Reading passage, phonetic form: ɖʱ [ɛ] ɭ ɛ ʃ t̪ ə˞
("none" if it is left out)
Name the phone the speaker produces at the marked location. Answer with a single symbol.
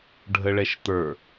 ə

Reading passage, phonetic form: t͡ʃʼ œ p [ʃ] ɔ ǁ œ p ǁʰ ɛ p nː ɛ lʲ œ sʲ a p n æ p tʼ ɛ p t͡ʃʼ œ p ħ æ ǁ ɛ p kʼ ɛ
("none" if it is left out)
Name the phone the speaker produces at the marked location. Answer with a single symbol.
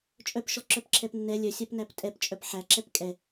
ʃ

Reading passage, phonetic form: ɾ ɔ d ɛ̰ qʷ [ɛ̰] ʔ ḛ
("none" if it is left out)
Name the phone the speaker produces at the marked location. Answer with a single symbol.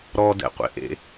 ḛ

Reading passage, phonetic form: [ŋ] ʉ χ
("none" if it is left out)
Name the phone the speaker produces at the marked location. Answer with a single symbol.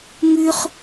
ŋ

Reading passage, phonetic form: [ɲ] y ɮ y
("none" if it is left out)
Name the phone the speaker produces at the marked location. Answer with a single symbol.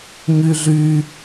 ɲ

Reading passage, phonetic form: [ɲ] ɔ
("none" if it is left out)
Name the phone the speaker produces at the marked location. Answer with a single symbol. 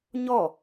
ɲ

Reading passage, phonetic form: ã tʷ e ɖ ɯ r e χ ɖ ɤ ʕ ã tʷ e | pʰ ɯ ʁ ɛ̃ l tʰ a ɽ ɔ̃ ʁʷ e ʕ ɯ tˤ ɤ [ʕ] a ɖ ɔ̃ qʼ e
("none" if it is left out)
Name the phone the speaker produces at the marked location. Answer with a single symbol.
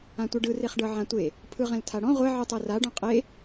r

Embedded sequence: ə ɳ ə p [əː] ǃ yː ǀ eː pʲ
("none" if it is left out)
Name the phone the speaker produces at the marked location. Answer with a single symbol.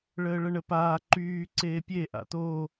aː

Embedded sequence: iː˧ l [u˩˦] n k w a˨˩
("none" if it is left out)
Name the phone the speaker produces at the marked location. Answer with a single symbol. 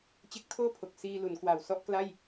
u˩˦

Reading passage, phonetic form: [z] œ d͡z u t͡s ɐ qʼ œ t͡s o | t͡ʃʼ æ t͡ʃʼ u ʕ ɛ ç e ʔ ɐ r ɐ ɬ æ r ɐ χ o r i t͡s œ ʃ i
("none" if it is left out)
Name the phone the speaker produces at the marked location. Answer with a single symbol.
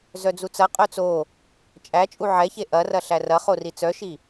z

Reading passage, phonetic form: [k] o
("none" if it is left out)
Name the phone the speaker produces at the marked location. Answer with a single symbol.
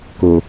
k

